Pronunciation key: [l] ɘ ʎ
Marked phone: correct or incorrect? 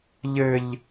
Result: incorrect